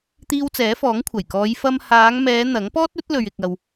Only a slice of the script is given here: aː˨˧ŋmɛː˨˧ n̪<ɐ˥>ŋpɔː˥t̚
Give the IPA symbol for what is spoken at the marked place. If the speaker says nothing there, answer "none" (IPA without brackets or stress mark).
ɐ˨˥